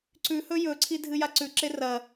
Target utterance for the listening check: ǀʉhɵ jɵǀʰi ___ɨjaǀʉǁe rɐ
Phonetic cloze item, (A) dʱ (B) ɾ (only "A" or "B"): A